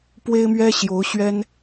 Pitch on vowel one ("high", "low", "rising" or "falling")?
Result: high